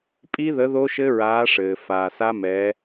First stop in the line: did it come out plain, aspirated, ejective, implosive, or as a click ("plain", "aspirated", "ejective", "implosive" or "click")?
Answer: ejective